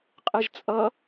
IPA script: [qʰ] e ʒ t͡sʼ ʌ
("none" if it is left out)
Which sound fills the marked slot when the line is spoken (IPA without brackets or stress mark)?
qʼ